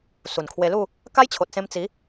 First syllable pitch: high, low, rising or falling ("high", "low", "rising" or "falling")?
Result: low